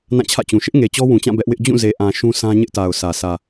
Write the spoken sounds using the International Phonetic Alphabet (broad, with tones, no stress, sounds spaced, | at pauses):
n ã˦˨ t͡ɕʰ ä̰˦˨ t͡ɕ ũ˨ ʃ ɪ˦ ʔ ŋ e˨ t͡ɕ ɔ˦ w ũ˨ t͡ɕ ã˦˨ b ɛ˦ ʔ w ɪ˦ ʔ d͡ʑ ũ˦˨ z e˨ ʔ ã˨ ʃ ũ˦ s ã˦ ɲ ɪ˦ ʔ t a˨ ʊ̯ sʰ ä˨ sʰ ä˨